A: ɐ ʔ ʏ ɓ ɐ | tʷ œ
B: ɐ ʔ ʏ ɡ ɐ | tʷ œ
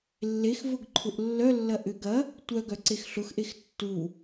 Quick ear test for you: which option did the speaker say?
B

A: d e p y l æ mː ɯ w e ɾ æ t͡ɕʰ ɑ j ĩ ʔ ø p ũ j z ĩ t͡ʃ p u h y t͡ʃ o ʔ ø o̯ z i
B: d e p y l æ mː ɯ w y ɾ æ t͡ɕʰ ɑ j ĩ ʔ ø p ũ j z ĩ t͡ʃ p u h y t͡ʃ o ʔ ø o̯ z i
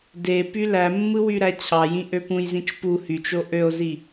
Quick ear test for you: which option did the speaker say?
B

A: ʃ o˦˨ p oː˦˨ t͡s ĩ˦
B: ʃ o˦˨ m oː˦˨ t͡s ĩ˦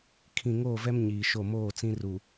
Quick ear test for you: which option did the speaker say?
B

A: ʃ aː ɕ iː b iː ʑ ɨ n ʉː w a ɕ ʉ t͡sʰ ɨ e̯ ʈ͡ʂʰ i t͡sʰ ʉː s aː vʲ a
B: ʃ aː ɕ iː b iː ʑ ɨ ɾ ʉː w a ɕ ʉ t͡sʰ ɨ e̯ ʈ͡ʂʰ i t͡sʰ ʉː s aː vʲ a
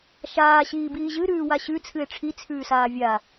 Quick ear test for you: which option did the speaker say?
B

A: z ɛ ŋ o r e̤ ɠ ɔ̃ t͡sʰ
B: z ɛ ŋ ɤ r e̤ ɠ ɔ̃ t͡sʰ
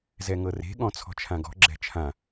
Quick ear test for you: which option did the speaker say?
B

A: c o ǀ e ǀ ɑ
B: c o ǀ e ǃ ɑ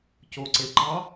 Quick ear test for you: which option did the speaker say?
B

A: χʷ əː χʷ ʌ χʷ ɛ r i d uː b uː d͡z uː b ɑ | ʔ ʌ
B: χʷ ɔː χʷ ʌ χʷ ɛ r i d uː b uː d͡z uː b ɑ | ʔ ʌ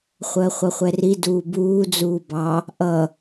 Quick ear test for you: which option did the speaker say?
A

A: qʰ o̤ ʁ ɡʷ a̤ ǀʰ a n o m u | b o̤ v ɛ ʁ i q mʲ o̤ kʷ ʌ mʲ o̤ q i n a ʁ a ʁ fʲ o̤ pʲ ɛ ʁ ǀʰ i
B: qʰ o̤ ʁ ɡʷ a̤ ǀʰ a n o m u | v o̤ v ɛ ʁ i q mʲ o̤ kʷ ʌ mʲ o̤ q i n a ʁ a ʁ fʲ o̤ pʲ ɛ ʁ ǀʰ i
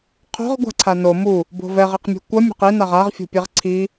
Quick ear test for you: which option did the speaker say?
A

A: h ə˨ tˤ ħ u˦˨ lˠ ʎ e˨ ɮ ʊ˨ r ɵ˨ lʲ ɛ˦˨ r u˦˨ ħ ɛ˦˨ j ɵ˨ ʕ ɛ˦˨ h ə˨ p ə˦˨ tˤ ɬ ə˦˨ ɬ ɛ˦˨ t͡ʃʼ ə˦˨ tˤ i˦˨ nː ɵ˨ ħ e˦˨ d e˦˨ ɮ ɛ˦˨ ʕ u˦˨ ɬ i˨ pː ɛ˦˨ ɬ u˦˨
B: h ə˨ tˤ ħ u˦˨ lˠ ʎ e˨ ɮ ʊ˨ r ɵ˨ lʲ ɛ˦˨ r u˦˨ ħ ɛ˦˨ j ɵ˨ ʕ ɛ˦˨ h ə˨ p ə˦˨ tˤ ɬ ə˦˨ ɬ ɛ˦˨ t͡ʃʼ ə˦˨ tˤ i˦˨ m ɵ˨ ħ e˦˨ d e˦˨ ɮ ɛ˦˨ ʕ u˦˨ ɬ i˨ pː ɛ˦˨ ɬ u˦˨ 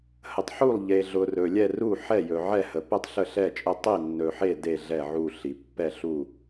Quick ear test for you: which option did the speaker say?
A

